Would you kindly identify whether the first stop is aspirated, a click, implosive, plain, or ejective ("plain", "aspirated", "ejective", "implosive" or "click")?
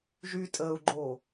ejective